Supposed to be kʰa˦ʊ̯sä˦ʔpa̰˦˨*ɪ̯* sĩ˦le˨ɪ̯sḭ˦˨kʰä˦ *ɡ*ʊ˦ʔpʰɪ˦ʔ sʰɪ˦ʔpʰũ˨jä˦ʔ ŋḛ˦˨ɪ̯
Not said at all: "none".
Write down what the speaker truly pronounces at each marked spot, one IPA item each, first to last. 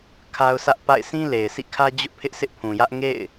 ɪ̯, d͡ʑ

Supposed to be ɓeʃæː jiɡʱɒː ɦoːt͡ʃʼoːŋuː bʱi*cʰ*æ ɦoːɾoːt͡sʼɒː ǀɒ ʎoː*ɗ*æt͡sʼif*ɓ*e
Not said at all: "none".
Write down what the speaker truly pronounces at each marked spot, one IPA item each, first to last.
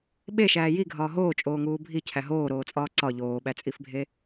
cʰ, ɓ, bʱ

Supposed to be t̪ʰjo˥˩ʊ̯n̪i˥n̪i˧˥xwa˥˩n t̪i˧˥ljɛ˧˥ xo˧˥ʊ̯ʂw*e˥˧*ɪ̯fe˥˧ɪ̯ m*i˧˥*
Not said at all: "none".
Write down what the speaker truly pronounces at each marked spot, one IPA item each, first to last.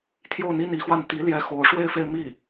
e˥˧, i˥˩

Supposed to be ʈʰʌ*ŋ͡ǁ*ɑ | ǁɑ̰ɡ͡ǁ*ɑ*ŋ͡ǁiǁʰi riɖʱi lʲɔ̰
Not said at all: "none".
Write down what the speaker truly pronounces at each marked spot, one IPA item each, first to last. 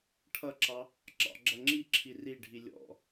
ǁ, ʌ

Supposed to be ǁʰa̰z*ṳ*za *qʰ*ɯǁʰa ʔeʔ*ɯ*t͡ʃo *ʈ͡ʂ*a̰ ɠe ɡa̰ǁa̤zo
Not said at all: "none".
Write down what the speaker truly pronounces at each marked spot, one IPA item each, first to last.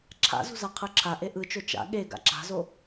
ṳ, qʰ, ɯ, t͡ʃ

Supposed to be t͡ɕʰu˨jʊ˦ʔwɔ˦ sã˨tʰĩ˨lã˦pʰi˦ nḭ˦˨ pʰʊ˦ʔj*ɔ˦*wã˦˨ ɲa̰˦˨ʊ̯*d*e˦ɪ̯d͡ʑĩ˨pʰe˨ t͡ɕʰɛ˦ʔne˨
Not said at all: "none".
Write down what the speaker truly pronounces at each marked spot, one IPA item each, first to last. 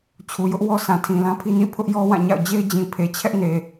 ɔ˦, d͡ʑ

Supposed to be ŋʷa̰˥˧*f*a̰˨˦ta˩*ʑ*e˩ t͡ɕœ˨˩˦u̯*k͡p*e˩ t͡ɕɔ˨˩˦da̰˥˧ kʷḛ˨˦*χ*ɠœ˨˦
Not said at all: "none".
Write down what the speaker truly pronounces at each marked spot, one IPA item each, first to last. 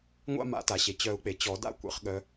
m, ɕ, k͡p, χ

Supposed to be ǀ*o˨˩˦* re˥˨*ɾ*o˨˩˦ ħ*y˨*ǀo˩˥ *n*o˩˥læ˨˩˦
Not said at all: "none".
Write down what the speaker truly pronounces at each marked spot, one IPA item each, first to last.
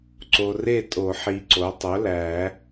o˨, tʼ, i˨, tˤ

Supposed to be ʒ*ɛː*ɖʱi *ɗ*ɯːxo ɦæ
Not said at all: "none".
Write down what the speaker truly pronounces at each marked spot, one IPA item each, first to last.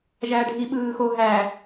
æː, ɓ

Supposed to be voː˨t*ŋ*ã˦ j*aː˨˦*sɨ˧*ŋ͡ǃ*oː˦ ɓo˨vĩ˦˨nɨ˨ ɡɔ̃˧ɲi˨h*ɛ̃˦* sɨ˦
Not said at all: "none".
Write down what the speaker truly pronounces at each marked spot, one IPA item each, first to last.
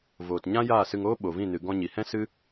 ɲ, aː˦˨, ŋ, ɛ̃˦

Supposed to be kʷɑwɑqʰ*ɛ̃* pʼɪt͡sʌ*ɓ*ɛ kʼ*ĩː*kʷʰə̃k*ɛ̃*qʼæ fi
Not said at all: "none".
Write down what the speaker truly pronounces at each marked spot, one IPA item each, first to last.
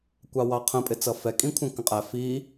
ə̃, f, ĩ, ə̃

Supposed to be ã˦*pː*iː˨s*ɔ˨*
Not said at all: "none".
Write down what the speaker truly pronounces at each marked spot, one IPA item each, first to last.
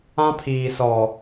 pʰ, ɔ˨

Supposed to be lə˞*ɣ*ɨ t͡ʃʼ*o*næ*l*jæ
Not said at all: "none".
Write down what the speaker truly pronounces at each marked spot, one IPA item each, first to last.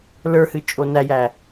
h, o, none

